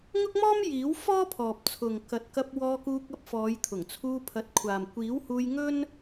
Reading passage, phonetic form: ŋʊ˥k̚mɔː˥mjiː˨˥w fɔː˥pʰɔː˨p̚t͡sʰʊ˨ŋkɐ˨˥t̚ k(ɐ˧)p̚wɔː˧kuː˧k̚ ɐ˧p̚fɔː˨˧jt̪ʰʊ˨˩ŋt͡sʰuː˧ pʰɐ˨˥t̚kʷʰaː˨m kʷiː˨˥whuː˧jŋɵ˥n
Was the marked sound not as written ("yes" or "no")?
no